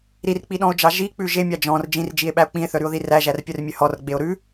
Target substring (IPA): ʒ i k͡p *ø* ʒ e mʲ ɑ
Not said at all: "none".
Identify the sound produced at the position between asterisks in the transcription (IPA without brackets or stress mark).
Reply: ʉ